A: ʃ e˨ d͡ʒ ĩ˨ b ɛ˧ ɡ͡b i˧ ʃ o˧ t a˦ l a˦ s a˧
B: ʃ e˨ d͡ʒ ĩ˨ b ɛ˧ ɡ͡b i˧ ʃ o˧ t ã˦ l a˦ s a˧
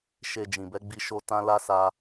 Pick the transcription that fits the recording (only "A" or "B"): B